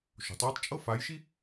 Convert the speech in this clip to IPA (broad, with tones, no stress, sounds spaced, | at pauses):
ʃ o̤˩˥ tˤ j ɛ˥ tˤ t͡ʃʼ ɤ˥ f a˧˥ j ʃ i˥